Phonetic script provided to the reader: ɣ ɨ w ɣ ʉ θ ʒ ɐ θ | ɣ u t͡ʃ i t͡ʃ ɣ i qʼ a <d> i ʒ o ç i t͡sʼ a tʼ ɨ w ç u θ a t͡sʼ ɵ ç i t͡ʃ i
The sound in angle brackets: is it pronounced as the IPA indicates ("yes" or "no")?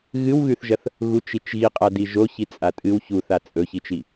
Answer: yes